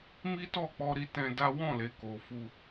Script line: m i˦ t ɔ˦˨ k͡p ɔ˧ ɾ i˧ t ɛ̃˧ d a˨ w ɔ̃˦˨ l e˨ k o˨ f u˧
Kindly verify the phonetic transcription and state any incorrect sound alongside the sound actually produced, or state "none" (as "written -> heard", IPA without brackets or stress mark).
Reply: a˨ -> a˦